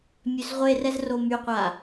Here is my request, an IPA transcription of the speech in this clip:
mʲ ø z ʁʷ e r ɛ z r o m y qʷ a

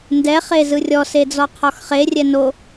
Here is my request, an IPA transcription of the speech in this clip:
n d ɛ χ e z ɯ rʲ ɔ s e d͡z ɔ qʰ ɔ x χ e rʲ ɛ n o

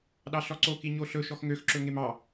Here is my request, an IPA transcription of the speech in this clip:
ɗ ɑ ɬ ɔ ǀ o k i ɲ o ɬ ɵ ʃ ɔ x ŋ ø x ǁ ɵ ŋ e m ɑ

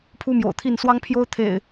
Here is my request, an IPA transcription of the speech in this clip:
pʰ u˦ m j o̰˨˩ ʊ̯ t̪ʰ i˥˨ n s w ɑ˦ ŋ pʰ j o˦ ʊ̯ t̪ʰ ḛ˨˩ ɪ̯

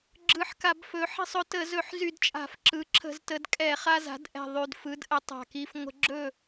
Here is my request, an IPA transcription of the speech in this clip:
ɡ͡ǁ ɯ˨˩ ħ k a˧˩˧ b f ɵ˩˥ ħ i̤˥˨ sˤ ɵ˦ t ə˧˩˧ z ɵ˧˩˧ ħ z y˧˩˧ d t͡ʃʼ a̤˧˩˧ f ǁ ɯ˩˥ ǁʰ ə̤˧˩˧ z t ə˩˧ d kʼ ɛ˧˩˧ χ a˦ z a̤˩˥ d ʔ ɛ̤˨˩ ðˤ y˨˩ d f ɯ˩˥ d ʔ ə˩˥ tˤ a̤˨˩ k i˦ f ŋʷ ə̤˦ ɡ͡ǁ ɵ˥˨

